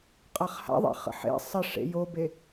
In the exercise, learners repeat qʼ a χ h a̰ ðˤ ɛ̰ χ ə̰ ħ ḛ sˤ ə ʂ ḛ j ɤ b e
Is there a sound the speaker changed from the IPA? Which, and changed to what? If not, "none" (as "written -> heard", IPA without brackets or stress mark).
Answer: ɤ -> o